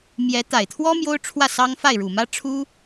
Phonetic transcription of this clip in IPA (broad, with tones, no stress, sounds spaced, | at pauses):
m j ɛ˧˥ t̪ a˨˩ ɪ̯ t̪ʰ w ɔ˥ m j o˥ ʊ̯ ʈ͡ʂʰ w ä˥˩ s ɑ˥ ŋ f a˥˩ ɪ̯ ɻ u˨˩ m ä˥ ʈ͡ʂʰ u˥